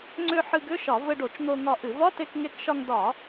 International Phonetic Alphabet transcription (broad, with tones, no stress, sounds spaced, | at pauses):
ŋ͡ǀ ʏ˧ ħ ɨ˧ ɡ ʏ˧˥˧ ʃ ɒ˧˩˧ v ɘ˧ ɖ o˧˩˧ t͡ʃ n̪ o˧ ŋ ɒ˧ ʔ ɨ˧˩˧ v ɒ˧˥˧ t e˧ k ŋ e˧ k ʃ ɒ˧ ŋ d ɒ˧˩˧